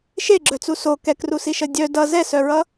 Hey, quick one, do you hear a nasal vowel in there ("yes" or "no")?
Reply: no